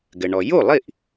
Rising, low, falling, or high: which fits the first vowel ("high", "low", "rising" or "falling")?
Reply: low